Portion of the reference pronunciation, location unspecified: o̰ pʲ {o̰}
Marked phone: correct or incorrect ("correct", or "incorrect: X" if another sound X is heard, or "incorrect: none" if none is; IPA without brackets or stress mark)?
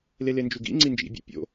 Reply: correct